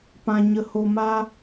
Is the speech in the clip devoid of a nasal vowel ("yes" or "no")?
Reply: no